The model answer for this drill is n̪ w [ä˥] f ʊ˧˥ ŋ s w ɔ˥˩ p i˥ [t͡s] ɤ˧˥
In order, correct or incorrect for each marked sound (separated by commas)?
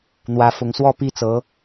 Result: incorrect, correct